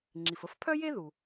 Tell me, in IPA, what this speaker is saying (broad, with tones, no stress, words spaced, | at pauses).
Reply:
ŋ͡ǁi˩fə˥fpʰœ˥je˥ ðu˩